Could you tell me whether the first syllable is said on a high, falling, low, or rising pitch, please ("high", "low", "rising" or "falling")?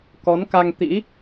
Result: rising